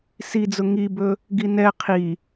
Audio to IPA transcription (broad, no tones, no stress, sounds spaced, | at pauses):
s i d͡z ʊ ŋ i b ɵ | ɡ i n ɛ qʰ i